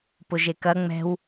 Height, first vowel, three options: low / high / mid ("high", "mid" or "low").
high